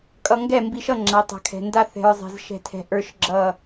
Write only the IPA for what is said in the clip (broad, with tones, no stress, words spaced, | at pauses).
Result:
kʼʌ˨ŋɡɛ˦˨ mbi˨ʃʌ˦˨ ŋ͡ǁa˨˦tˤa̤˨kʰɛ̤˨ nda˦θɛ̤˨ɹzˤɛ̤˨z ʃɛ̤˨tʰɛ̤˨ ʔə˞˦ʃɡ͡ǁʌ˦˨